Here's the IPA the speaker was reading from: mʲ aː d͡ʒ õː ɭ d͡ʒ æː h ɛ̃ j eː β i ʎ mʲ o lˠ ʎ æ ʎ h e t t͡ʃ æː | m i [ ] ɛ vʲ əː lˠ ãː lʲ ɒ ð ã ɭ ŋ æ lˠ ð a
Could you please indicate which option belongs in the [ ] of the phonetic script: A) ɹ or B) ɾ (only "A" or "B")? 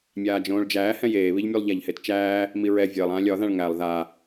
A